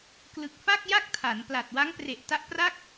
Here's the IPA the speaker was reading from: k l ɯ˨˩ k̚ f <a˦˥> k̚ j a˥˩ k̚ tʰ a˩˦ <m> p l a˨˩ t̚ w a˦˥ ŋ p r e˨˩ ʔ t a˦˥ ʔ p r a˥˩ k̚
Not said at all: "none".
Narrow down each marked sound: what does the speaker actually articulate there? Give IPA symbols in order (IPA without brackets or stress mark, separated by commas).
a˥˩, n